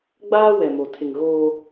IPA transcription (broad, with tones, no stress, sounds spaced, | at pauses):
ɡ͡b aː˦ w ɛ˨ m o˨ tʰ ɪ˨ ŋ ɣ oː˦